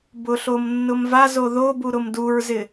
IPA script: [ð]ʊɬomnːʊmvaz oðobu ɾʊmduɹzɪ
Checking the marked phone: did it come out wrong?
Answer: yes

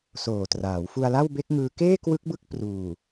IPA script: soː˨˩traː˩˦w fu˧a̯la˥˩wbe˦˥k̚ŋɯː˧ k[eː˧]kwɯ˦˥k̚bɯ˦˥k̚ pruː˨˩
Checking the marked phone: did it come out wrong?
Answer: yes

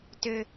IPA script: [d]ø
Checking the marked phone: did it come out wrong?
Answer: yes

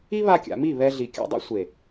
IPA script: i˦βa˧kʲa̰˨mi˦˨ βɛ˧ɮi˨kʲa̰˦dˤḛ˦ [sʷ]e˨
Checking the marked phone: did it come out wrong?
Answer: no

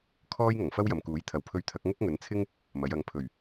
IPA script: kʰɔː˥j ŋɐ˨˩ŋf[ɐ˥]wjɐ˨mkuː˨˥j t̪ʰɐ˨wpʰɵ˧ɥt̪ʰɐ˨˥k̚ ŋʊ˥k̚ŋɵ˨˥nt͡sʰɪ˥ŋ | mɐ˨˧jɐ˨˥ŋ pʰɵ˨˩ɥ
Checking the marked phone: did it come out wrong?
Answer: no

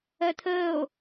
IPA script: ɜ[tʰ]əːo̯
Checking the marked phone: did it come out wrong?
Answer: no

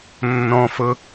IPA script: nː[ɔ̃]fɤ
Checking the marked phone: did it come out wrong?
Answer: no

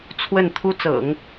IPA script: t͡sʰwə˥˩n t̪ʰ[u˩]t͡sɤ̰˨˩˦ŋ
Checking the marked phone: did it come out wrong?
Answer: yes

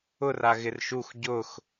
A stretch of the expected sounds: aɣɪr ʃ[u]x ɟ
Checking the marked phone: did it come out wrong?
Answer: no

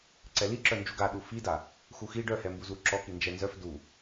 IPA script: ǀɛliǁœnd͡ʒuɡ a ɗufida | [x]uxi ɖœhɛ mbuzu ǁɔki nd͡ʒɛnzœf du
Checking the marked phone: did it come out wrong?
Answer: no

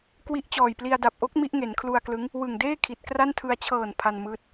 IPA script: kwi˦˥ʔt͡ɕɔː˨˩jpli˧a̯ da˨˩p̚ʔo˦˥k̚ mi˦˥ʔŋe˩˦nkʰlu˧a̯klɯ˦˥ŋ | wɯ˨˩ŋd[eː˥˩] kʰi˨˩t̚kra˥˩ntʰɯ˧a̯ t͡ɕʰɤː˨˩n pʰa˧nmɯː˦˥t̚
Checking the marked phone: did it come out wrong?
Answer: no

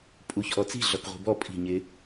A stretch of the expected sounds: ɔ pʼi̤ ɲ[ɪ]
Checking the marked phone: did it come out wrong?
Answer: no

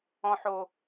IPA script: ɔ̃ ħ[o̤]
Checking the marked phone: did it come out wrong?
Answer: yes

